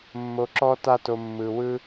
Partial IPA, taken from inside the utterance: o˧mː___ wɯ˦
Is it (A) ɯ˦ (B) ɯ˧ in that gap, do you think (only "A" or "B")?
B